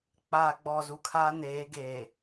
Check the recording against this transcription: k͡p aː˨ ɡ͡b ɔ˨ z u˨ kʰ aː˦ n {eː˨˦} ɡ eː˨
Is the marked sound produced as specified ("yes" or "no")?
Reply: yes